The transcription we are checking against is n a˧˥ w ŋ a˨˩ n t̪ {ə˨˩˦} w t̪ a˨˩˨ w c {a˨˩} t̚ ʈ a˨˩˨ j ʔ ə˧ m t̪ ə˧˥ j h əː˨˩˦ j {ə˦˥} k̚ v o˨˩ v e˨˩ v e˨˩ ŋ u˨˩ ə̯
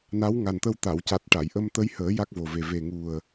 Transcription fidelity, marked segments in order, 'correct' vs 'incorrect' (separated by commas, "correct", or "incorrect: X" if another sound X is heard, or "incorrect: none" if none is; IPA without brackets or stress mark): incorrect: ə˧, correct, incorrect: a˦˥